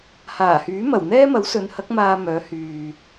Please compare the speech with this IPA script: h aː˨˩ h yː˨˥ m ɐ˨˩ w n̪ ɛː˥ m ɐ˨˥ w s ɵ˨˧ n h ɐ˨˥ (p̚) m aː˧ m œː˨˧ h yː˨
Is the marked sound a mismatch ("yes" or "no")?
yes